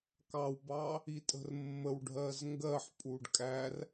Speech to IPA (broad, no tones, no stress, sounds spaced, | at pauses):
k ɑ w b ɑ | i tʼ ə̤ r mː ə w ɖʱ ɜ z ŋ ɡ ɜ ħ pʼ u ɖ kʼ æ r